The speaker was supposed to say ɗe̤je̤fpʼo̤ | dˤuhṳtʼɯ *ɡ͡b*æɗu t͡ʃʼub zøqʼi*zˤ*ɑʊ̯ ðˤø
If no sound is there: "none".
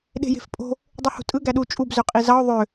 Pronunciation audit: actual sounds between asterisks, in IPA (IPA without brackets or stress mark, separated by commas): ɡ, z